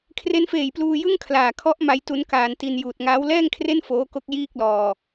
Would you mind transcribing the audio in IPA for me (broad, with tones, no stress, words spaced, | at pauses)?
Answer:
kʰre˦˥nfeː˨˩jpluː˧ jɯ˥˩ŋkʰlaː˨˩kʰɔ˦˥ʔ ma˦˥jtu˦˥n kaː˧nti˧n juː˨˩t̚ŋaː˦˥w lɛː˥˩ŋkʰre˥˩n foː˦˥ko˦˥k̚ jiː˥˩k̚lɔː˧